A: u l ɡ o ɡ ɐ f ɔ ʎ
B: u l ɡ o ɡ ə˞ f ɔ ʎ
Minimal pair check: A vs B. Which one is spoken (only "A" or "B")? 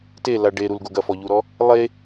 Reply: A